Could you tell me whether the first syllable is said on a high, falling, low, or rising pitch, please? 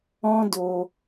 high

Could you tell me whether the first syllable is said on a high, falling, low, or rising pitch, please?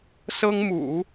high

